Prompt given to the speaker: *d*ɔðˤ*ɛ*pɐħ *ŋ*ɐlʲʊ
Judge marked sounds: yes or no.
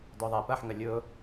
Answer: yes, yes, yes

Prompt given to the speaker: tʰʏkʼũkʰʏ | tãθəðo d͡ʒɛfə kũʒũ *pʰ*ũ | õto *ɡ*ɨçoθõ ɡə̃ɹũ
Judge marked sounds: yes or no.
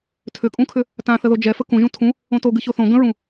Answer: no, yes

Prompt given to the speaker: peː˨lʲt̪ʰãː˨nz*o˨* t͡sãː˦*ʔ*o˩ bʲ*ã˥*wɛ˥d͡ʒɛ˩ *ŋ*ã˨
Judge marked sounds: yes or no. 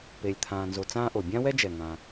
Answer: yes, yes, yes, yes

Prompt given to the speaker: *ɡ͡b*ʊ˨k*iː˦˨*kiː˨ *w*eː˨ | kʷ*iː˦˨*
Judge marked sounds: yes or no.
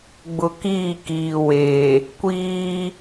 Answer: yes, yes, yes, no

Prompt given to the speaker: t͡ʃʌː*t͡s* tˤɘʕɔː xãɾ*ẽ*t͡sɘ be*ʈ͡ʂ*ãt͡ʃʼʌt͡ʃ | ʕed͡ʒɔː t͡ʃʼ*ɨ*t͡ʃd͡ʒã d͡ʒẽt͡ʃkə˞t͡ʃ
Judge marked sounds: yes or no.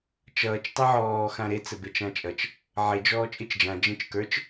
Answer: no, no, no, yes

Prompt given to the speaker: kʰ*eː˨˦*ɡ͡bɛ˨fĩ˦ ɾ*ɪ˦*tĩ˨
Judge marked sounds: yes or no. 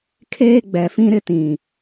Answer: no, yes

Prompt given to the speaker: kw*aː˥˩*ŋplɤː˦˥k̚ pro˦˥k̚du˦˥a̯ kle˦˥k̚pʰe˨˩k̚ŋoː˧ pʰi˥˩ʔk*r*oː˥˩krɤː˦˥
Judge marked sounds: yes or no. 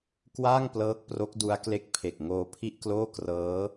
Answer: yes, no

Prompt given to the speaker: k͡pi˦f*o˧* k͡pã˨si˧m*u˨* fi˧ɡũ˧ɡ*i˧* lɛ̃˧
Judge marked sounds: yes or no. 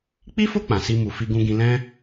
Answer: no, yes, no

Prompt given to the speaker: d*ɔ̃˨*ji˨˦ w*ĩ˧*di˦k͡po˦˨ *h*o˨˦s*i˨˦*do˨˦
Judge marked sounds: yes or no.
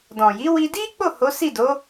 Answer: yes, no, yes, no

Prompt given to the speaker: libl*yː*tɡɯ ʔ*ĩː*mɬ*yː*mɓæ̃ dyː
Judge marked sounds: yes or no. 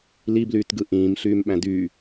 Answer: yes, yes, yes

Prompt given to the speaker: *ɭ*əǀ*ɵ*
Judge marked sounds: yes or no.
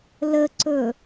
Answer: no, yes

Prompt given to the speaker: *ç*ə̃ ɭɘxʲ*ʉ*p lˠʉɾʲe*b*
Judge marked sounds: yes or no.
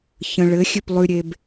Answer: yes, yes, yes

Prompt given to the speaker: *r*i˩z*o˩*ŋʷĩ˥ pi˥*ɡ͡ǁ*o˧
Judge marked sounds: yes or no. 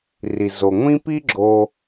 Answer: yes, yes, yes

